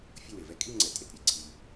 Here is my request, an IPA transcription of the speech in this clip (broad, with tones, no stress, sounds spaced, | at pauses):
fʲ ʌ˦˨ w e˩ v ɛ˦˨ kʼ i˦˨ ŋ͡ǀ ɛ˩ tʼ e˩ t ɾʲ e˦˨ ǀʰ i˩